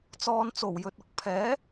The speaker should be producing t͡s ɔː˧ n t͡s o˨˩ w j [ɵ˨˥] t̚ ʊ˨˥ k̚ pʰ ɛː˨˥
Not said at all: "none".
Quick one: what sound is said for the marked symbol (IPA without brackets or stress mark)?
ɵ˨